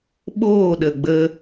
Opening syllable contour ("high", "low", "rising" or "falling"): falling